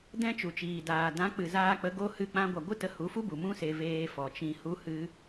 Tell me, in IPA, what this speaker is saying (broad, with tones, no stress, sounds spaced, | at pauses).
d ɛ̃˧ t͡ʃ u˨ t͡ʃ iː˨ d aː˨ d ã˨˦ k͡p ɨ˨ z aː˧ k͡p ə˨˦ ɡ o˧ h ɨ˦˨ k͡p ã˦ ɡʷ a˧ ɡʷ ɨ˦ t ə˧ h u˨˦ f u˦ b u˨ m ũ˦ s e˧ v eː˧ f ɔ˨ t͡ʃ ĩ˧ h u˦ h ɨ˦